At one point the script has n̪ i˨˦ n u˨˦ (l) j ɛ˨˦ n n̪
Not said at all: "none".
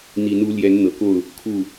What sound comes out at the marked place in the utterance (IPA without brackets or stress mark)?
l